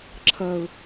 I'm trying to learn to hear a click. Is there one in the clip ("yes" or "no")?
yes